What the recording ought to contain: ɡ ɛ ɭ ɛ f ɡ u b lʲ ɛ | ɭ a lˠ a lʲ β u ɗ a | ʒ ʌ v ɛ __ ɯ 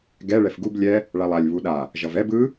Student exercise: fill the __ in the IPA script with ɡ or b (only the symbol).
b